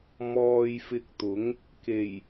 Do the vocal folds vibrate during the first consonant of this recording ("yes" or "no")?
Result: yes